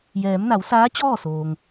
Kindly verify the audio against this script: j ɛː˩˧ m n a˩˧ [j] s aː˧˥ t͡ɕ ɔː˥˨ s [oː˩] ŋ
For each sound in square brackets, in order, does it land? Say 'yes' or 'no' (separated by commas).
no, yes